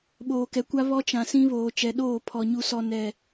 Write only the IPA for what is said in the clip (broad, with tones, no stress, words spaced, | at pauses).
ɓoː˨kɛ˨kʷa˦ βɔ˦t͡ʃã˨ sĩ˦ βoː˨t͡ʃɛ˨ɗoː˦˨ pʰɔ˨ ɲu˨sɔ˨ nɛ˨